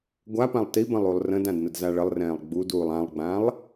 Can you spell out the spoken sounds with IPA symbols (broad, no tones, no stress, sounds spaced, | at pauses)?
ɡʷ a p ã lˠ t i b ə̃ lˠ u lˠ r ə̃ d ã d n ə d z a ɭ ə lˠ r ɛ̃ː lˠ ɡ͡b u d uː lˠ ã lˠ ɡ͡b ã lˠ